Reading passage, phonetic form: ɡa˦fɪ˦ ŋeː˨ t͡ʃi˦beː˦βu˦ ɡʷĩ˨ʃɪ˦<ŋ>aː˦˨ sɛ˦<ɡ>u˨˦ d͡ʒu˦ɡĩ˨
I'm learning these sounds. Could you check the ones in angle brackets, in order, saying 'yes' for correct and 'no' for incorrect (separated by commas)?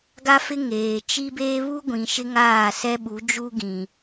yes, no